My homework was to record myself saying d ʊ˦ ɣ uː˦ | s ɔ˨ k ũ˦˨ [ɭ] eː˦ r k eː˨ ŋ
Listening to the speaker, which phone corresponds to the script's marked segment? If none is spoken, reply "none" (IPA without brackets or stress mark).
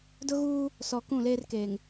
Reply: l